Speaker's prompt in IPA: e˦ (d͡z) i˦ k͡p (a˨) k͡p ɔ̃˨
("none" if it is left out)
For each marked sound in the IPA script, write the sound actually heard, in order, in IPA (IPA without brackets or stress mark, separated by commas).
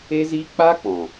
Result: z, a˦